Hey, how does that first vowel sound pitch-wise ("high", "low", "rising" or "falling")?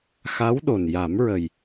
rising